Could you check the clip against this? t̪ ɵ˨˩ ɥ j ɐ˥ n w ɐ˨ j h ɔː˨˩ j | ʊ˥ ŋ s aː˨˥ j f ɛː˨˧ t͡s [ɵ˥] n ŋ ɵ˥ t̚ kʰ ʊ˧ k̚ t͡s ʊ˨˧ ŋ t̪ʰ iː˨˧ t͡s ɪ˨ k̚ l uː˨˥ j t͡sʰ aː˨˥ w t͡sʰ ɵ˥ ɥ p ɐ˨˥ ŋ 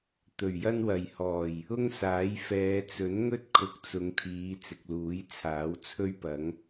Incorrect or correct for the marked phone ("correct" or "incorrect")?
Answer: incorrect